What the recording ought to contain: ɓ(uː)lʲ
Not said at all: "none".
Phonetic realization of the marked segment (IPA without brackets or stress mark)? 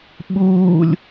uː